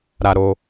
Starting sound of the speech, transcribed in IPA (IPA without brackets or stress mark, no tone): ɾ